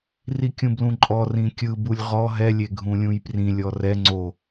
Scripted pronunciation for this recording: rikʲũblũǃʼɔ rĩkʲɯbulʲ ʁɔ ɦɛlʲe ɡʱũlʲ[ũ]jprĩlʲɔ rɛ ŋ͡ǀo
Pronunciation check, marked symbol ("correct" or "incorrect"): correct